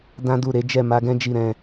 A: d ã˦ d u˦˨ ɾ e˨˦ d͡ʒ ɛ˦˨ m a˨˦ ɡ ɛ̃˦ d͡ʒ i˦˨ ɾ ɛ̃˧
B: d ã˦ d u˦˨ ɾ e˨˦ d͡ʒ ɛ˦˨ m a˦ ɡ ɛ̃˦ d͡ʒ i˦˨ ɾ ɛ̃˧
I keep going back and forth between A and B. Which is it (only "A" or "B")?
A